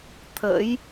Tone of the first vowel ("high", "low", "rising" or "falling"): rising